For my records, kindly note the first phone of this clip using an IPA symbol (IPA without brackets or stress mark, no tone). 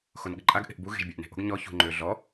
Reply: x